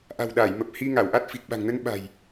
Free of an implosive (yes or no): no